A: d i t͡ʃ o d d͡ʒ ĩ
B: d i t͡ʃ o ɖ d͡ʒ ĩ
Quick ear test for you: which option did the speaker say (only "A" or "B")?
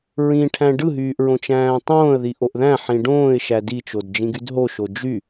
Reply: A